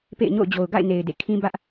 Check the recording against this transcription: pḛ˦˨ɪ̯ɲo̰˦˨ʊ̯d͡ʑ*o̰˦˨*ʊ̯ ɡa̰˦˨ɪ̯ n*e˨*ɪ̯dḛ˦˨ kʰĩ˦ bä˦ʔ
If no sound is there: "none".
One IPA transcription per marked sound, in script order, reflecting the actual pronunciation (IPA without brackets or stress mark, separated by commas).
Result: o˨, e˨